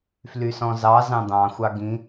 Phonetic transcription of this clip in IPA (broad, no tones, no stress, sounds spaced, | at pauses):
f l y s ɔ̃ z ɑ z ɑ̃ d̪ ɑ̃ xʷ ɑ ɡ ĩ